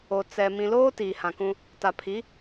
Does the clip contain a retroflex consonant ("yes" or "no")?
no